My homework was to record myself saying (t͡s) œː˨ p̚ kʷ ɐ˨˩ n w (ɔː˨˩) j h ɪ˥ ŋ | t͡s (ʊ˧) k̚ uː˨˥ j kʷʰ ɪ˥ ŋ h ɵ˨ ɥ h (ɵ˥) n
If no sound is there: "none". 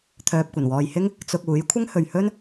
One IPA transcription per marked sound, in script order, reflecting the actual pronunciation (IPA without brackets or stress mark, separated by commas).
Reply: t̪ʰ, ɔː˨, ʊ˧, ɵ˥